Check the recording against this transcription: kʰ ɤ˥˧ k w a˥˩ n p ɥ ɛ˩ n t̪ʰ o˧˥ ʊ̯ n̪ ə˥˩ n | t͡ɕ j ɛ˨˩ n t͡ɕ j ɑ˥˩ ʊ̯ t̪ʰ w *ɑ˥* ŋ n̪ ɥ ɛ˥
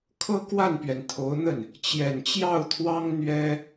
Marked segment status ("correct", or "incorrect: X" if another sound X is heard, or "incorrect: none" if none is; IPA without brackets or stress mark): correct